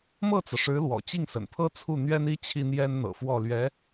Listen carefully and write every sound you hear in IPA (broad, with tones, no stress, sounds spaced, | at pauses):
m ɤ˥˩ t͡s ɤ˩ ʂ ɻ̩˧˥ l w ɔ̰˨˩ t͡ɕ i˥˩ ŋ s ə̰˨˩ n pʰ ɤ˥ t͡sʰ u˥˩ n̪ ɥ ɛ˥ n i˥ t͡ɕʰ i˥ n̪ j ɛ˥ n n̪ ɤ̰˨˩ f w ɔ˥˩ l ɥ ɛ˧˥